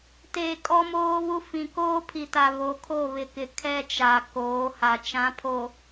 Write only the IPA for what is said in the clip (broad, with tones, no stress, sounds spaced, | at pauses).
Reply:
t eː˨ kʼ ɔ˦ m oː˦ β u˦ f ĩ˨ k oː˦ pʰ i˨ t a˨ β o˨ kʰ o˦˨ β ɪ˨ k ɪ˨ kʰ ɛ˦ t͡ʃ a˨ k oː˨˦ h a˨ t͡ʃ ã˨˦ pʰ o˨